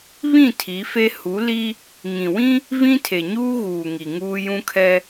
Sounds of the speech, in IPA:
β ĩ˦˨ tʰ i˨˦ f e˦ h u˨˦ l i˦ | ŋ ĩ˨ w ĩ˦ | v ĩ˦ tʰ e˨ ɲ uː˦ ɣ uː˨ ŋ i˨ ŋ uː˦ j ũ˦ kʰ ɛ˦

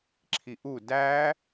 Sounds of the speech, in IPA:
ǁʰ i ʔ u d æ

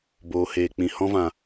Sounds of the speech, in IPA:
b oː˨ h eː˨ k͡p ĩ˨ h ɔ̃˧ v ã˨

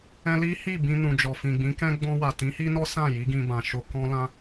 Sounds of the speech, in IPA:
ɛ̃˦ l i˦ h i˦˨ b ĩ˧ n ũ˨ d͡ʒ ɔ˨ f ĩ˨ ɡ͡b ĩ˨˦ k ɛ̃˦ ɡ͡b ɔ̃˧ w a˨ t ĩ˨˦ h i˦ n ɔ˦ s ã˦˨ j i˨˦ ɡ ĩ˧ b ã˨ ʃ o˧ k ɔ̃˦ l ã˦

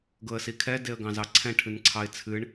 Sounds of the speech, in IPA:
ɡ ɤ ə̯ s i kʰ ɛ d e ə̯ ɡ ɑ̃ z ɑ ǀʰ ɛ̃ ʈʰ ɨ n ǀʰ ɑ ɪ̯ t͡sʰ ɨ ɳ

